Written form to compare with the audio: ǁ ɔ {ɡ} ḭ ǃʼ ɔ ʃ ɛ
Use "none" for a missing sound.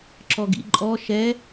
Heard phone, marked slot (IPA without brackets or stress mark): ɡ